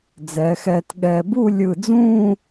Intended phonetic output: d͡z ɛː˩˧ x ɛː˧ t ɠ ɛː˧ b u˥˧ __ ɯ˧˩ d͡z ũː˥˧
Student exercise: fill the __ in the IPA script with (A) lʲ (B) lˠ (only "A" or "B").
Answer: A